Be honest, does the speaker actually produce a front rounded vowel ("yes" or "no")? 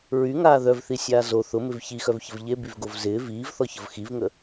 yes